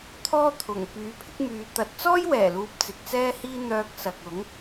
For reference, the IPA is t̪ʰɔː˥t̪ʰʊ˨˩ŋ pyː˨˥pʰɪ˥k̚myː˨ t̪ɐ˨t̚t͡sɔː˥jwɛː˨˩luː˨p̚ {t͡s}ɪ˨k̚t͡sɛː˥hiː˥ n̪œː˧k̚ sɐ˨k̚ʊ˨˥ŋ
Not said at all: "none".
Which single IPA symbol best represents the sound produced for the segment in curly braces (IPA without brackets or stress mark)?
t͡s